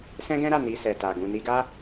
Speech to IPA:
s ɛ̃˦ ɡ ɛ̃˦ ɾ a˦˨ n i˧ s ɛ˨ t a˨ ɡ ũ˨ n i˧ ɡ a˦

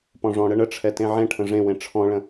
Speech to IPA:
p ɔ̃ ʐ ɔ̃ ɽ ə ɳ ə ʈ͡ʂʰ ɛ t ẽ ʕ ẽ ʈʰ ə̃ ʐ ẽ w ẽ ʈ͡ʂʰ ɔ̃ ɭ ə̃

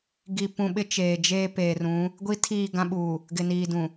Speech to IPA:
ɡ i˨ p ũ˨ ɓ ɪ˦ t͡ʃ eː˨ d͡ʒ eː˦ p eː˨ r ũ˨˦ | ɡʷ i˦ tʰ iː˦˨ ɡ ã˦ ɓ uː˨ | ɡ ɪ˨ n iː˨ d ũ˨

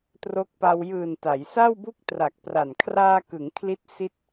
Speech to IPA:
t r o˦˥ k̚ p a˧ w j ɯː˨˩ n t a˩˦ j s a˥˩ w b u˥˩ k̚ t r a˨˩ k̚ p r a˨˩ n kʰ r aː˧ k ɯ˩˦ ŋ kʰ l i˥˩ t̚ s i˥˩ t̚

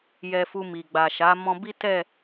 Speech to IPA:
j ɛ˧ f u˧ m i˨ ɡ͡b a˨ ʃ a˨˦ m ɔ̃˧ b i˦ t ɛ˦˨

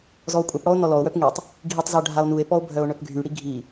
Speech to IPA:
z ɔ o̯ kʷʼ œ p ɽ ɔ o̯ n ɔ l ɔ o̯ w œ p ŋ i tˤ | ɡʱ i tˤ z œ ɖʱ a o̯ n u e̯ p ɔ o̯ bʱ œ o̯ ɳ œ p ɡʱ y ɽ i ɡʱ i

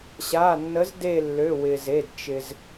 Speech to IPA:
ɕ a˩˧˩ nː ə˨˥ z d e˦˨ lː ø˩˧˩ w ɪ˩ z e˩˧˩ d t͡ʃ ɪ˩ z

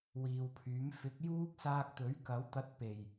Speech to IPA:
w iː˨ w pʰ yː˨˥ m f ɪ˨˥ k̚ j uː˥ k̚ s aː˧ k̚ t̪ ɵ˨˥ ɥ k ɐ˨˥ w t̪ ɐ˧ t̚ p e˨˩ j

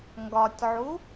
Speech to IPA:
ŋ ɡ ɒ tʲ ʕ u

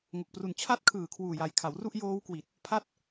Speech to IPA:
ŋ o˨˩ k̚ p r u˨˩ n t͡ɕʰ a˦˥ t̚ kʰ ɯː˨˩ kʰ w uː˨˩ j a˨˩ j kʰ a˩˦ w r u˥˩ ʔ j oː˦˥ w k w i˨˩ t̚ | pʰ a˥˩ t̚

